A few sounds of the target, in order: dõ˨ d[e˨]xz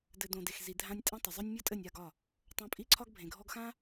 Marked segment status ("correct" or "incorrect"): correct